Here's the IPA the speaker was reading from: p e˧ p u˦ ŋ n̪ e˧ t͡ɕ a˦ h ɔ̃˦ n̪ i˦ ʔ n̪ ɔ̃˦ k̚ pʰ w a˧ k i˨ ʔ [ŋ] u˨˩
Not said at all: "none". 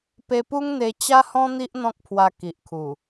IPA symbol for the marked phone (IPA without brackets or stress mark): kʰ